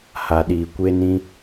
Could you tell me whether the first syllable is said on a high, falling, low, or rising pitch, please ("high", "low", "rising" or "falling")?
low